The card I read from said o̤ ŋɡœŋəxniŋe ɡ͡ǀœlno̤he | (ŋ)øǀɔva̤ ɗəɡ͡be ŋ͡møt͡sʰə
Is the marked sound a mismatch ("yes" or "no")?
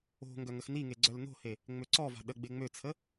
yes